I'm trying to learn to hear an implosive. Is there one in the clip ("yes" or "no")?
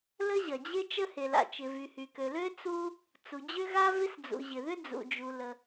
no